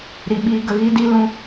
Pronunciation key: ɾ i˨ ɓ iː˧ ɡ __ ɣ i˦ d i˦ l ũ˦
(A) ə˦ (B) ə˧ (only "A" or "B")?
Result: B